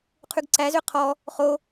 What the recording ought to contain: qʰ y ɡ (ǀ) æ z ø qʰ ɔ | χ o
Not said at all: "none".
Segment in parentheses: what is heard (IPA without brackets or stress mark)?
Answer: ǀ